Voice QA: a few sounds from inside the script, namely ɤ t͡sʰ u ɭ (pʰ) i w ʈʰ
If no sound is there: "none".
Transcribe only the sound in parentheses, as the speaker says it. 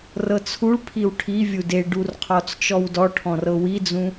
pʰ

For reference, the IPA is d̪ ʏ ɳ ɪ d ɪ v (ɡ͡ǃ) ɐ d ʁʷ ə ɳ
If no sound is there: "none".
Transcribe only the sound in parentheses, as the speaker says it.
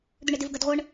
ɡ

